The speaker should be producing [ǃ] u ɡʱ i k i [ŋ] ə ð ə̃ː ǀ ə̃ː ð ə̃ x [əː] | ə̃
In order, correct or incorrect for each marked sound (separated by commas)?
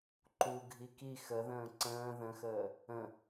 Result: correct, incorrect, correct